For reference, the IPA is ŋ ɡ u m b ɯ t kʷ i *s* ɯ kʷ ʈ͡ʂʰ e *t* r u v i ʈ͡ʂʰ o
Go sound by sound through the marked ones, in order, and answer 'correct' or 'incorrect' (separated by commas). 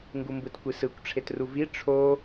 correct, correct